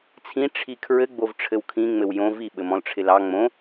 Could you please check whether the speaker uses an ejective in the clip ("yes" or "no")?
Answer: no